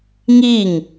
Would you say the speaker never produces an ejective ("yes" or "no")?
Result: yes